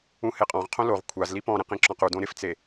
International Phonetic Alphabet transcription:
ũheqʼɔ̃ʁqʰõ loʁ kʷʰaz lipɔ̃ɾẽq ĩǁɔ̃qudõ ɾɪft͡se

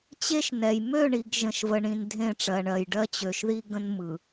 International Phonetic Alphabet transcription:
t͡ɕe˦ʃnɛ˨j mø˦˨ɳi˨ɡ ʒə̃˨ʃvə˨ɳĩ˨n dʱẽ˦˨ʈ͡ʂɜ˨ɳɜ˨jɖɜ˦ t͡ɕø˨ʃði˦ ɡə̃˦nmɯ˨

